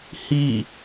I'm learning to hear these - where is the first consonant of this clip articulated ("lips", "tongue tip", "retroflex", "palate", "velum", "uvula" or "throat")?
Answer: throat